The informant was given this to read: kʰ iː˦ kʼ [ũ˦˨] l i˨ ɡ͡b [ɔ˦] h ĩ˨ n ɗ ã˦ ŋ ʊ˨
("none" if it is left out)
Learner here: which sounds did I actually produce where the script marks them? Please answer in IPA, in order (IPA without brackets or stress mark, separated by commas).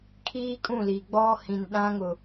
ũ˦˨, ɔ˦